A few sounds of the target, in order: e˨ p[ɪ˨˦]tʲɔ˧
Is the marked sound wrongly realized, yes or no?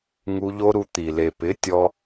no